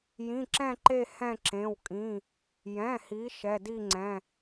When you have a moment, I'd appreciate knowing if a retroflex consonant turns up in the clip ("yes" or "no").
no